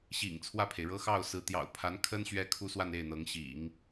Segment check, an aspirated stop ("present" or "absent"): present